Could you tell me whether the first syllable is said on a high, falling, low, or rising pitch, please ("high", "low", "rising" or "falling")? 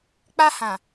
high